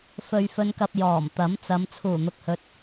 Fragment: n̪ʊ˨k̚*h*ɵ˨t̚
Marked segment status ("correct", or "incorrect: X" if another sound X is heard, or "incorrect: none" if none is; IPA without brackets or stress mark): correct